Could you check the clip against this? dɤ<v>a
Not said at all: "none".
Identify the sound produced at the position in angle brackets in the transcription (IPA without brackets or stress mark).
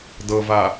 v